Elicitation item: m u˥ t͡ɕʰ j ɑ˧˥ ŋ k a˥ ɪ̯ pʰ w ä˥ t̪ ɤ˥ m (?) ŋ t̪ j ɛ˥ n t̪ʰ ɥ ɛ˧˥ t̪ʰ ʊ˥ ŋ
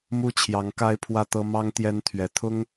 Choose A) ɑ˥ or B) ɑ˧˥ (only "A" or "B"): A